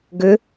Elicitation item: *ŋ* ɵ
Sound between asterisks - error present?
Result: yes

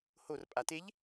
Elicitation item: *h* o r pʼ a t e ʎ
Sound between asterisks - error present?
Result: no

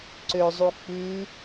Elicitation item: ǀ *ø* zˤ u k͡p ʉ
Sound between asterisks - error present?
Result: no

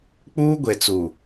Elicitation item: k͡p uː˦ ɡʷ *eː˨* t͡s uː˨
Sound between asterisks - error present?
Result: yes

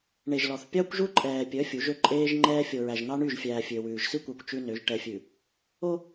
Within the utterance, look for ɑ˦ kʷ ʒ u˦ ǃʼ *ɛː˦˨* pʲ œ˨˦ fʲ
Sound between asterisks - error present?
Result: yes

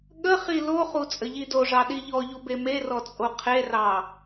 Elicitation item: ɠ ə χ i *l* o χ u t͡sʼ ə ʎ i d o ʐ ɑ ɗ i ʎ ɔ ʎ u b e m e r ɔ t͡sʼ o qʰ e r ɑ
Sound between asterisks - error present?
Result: no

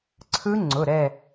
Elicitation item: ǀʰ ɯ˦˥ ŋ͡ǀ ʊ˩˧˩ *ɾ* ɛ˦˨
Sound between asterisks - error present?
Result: no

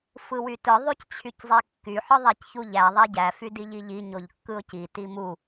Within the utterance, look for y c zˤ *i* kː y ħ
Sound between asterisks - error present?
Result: no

